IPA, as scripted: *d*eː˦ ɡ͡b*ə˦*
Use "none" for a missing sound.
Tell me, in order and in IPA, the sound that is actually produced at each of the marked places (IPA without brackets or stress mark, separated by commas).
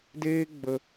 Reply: d, ə˦